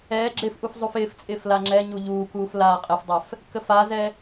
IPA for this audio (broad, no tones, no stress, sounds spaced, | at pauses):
ɛː ɡ͡ǁ ɪː f ʔ u f zˤ u f ɪː f t͡sʼ ɪː f l a ŋ͡ǁ ɛ ɲ u ʎ uː k uː f l aː qʼ ɪ f dˤ ɛ f | k ə f a z ɛ